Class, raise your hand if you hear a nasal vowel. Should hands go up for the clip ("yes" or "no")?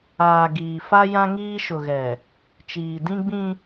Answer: yes